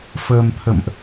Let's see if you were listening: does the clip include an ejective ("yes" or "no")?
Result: no